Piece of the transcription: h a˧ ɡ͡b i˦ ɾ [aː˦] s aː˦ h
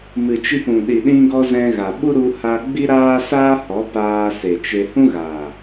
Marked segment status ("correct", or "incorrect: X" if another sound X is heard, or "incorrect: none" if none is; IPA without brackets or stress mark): correct